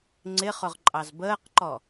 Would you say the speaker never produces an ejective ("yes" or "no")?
no